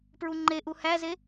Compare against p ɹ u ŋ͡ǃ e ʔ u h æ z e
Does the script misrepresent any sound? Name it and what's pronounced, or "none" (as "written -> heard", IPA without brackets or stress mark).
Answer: none